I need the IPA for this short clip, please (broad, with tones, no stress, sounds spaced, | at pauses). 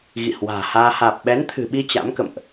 ɣ ḭ˧˨ h w a̤ː˨˩ h aː˧ h aː˨˩ p̚ ɓ ɛ˨˦ n t̪ʰ ɨ̤˨˩ ɓ i˧ t͡ɕ a̰˧˥ m k ə̰˧˨ m ʔ